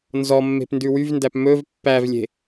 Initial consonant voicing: voiced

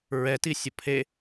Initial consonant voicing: voiced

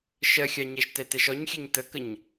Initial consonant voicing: voiceless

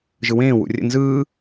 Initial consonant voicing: voiced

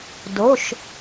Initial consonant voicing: voiced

